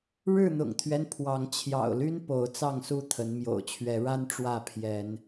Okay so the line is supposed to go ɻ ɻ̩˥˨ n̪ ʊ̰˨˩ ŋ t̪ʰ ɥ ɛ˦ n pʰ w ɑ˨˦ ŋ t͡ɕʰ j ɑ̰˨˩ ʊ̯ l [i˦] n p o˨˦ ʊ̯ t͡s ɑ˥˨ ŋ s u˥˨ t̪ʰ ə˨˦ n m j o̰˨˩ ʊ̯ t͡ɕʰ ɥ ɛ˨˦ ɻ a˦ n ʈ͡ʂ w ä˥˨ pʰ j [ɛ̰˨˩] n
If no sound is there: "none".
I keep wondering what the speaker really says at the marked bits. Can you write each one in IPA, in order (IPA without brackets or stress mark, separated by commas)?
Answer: y˦, ɛ˨˦